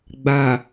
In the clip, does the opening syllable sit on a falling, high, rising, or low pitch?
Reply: low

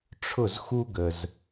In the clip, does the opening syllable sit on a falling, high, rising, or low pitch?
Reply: falling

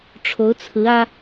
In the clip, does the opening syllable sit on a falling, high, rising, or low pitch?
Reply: rising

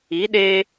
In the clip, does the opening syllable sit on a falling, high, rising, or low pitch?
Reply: rising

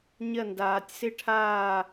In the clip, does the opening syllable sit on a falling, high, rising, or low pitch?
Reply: falling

